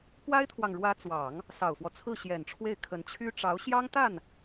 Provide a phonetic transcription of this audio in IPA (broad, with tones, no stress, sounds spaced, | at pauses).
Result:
p w a˥ ɪ̯ t̪ʰ w ɑ˨ ŋ ɻ w ä˧˥ t͡s w ɑ˨˩˦ ŋ | s ɑ˨˩ ʊ̯ f w ɔ˦ t͡sʰ ɹ̩˥˩ ɕ j ɛ˨˩ n ʈ͡ʂʰ w e˥˩ ɪ̯ kʰ ə˧˥ n t͡ɕʰ y˥ ʈ͡ʂ ɑ˧˥ ʊ̯ ɕ j ɑ˥ ŋ t̪ a˥˩ n